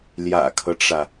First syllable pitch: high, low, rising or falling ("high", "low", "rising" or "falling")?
low